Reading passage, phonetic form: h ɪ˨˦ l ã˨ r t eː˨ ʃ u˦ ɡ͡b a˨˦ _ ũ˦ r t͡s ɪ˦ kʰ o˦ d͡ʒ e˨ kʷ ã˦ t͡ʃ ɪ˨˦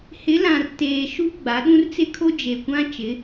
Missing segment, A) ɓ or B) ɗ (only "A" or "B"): B